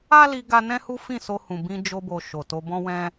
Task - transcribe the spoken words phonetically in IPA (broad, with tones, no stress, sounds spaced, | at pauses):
a˦ l i˧ ɡ a˦ n ɛ̃˦ h u˦ f ĩ˦˨ s o˧ h ũ˨ b ĩ˧ d͡ʒ o˧ b o˨ ʃ o˨ t o˧ b ɔ̃˦ w ɛ̃˦